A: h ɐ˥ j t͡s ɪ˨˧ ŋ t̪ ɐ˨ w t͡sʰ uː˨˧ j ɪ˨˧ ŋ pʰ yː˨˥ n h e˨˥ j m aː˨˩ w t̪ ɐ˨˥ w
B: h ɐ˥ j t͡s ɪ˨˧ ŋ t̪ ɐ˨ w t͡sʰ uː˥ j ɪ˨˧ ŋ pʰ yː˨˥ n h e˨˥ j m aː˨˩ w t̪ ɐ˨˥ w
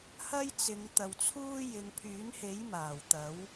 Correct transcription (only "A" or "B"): B